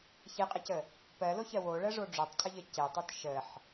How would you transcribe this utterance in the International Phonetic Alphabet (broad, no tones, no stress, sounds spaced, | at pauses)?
ç e qʼ e c ə | p ɜ l o ç ɜ w o ɭ ɜ ʐ o ɖ͡ʐ o tˤ cʰ ə ʎ ə c e tˤ o t ʃ ə ħ